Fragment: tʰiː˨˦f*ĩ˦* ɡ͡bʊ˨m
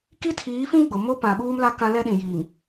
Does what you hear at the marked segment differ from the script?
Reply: no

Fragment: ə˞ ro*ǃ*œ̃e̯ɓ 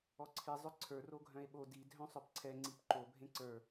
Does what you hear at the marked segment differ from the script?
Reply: yes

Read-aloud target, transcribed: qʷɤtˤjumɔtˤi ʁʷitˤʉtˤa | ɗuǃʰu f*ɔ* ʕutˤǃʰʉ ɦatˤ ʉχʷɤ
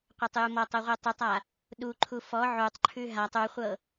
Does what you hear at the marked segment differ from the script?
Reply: no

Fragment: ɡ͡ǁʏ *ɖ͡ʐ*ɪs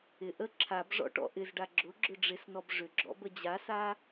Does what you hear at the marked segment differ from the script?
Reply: no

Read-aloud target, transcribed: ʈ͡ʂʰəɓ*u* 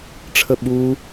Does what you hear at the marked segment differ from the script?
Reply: no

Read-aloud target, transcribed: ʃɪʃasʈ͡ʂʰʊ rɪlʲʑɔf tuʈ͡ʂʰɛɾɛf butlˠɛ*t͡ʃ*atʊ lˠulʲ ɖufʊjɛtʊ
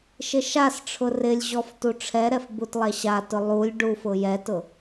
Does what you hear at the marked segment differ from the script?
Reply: yes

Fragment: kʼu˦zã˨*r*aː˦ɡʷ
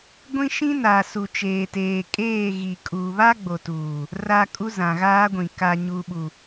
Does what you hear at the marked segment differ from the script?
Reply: yes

